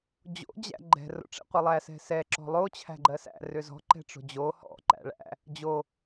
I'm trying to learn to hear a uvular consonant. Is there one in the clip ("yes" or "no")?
yes